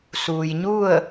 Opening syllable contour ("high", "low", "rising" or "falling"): low